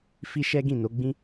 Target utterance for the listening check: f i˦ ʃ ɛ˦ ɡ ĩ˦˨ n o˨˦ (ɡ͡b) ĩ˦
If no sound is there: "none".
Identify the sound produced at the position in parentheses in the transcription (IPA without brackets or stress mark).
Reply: ɡ͡b